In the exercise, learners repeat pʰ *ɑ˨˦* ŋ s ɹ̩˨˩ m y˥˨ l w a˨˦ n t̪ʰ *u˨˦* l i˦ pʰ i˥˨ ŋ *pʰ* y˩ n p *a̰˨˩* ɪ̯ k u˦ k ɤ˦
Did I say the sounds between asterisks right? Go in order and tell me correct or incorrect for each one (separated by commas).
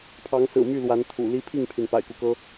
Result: correct, incorrect, correct, correct